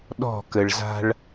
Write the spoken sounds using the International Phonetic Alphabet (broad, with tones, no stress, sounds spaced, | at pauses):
ɗ ɔ̤˦˨ k ə˨ ɭ z a̤˦ ɭ